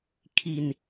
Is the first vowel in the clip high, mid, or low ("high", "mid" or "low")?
high